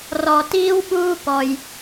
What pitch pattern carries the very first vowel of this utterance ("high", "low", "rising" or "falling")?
low